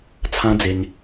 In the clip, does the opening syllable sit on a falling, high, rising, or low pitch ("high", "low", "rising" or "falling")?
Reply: high